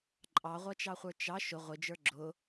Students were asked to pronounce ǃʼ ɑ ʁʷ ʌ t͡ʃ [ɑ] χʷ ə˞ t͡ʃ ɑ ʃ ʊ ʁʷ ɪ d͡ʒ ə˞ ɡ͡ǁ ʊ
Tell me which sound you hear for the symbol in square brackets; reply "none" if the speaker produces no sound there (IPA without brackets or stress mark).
ɑ